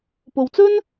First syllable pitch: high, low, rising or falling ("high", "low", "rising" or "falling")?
low